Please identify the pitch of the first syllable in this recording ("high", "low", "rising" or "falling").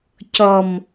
low